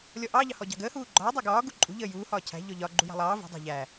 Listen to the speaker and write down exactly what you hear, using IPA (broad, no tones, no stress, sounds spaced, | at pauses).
lʲ ɔ ʔ ɑ ʎ ɑ h ɔ ɟ ɑ̤ ɡ əː h uː ɡ͡ǃ ɒː dˤ ɑ ɡ ɒː ɡ u ǃʼ ṳ ʎ əː j uː h ɒː cʰ æ̤ ʎ ɔ ʎ ɒ ɡ͡ǃ u j ɑ̤ lˠ ɑː v ṳ dˤ ɑ̤ ʎ æ